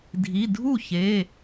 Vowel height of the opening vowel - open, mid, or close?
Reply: close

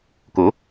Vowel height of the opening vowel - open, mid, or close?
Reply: mid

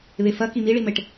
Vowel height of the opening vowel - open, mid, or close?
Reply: mid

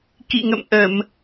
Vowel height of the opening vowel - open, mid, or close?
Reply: close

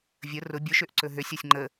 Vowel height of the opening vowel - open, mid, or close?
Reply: mid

